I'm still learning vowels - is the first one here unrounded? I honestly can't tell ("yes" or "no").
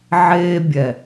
yes